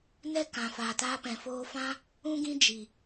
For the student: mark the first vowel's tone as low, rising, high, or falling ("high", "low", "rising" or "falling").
high